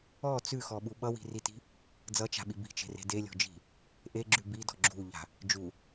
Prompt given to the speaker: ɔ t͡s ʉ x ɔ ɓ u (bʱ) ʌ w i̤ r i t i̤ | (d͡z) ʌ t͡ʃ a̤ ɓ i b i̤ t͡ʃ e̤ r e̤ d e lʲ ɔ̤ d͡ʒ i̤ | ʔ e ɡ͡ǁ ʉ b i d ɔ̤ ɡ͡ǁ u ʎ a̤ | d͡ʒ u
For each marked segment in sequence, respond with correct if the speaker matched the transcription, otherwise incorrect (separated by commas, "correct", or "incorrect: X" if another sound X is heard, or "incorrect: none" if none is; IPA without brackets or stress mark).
incorrect: ɓ, correct